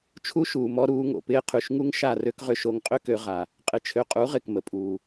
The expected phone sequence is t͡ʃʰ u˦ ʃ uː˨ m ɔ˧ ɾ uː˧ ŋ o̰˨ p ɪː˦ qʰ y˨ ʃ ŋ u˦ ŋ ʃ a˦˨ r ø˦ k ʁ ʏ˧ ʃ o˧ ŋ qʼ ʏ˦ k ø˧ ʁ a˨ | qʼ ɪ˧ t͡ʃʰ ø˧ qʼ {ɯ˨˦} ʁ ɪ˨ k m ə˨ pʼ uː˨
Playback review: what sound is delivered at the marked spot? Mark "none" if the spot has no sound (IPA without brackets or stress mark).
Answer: u˨˦